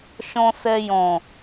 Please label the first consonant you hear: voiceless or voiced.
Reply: voiceless